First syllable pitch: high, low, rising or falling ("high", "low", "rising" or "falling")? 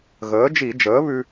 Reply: rising